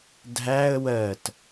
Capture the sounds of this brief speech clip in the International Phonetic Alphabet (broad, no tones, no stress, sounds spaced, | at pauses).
dʱ æ ə̯ w ɜ t